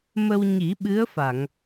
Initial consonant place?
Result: labial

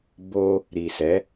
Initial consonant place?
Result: labial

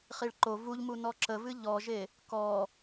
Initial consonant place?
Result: uvular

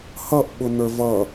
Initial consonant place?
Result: glottal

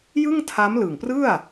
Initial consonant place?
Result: palatal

